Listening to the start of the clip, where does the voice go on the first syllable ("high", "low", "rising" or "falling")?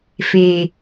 low